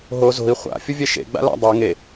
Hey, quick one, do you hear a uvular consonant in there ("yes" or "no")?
yes